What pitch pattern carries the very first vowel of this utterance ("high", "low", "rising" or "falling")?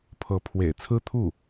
rising